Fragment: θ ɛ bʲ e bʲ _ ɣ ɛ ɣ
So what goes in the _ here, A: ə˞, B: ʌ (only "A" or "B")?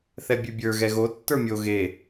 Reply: A